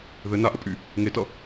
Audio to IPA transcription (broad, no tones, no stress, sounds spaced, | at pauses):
ð ɘ n a ʔ ə pʼ y | ŋ e t ʌ